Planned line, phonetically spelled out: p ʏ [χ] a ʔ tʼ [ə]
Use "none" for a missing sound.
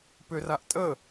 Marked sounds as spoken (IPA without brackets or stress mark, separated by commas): r, ə